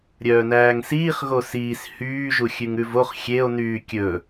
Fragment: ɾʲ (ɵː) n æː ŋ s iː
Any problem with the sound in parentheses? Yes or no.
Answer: yes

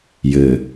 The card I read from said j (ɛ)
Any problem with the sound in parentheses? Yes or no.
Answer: yes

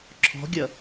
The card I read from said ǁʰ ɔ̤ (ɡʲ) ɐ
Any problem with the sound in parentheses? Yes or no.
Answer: no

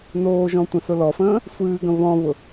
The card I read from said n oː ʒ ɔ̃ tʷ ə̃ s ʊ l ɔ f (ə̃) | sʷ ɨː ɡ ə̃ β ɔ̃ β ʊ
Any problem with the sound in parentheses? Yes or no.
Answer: yes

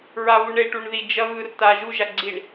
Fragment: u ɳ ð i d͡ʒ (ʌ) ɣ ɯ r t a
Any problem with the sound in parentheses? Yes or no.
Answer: no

